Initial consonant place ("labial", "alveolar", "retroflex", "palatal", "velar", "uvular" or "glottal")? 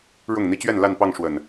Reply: retroflex